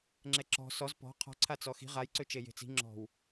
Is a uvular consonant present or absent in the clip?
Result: present